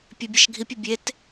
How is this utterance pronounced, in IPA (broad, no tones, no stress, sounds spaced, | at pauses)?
pʲ e bʲ æ ʃ ɡʱ i pʲ u bʲ e t